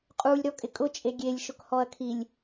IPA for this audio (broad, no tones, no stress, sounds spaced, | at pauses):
qʼ u lʲ ɾ ɔ kʼ ɪ kʼ ʊ t͡ʃʼ e ɡʲ e lʲ ʃ ʊ k h ɔ ɐ̯ kʰ i lʲ